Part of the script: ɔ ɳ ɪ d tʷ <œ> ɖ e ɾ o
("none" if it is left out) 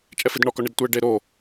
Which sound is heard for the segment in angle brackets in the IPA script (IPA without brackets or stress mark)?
ɛ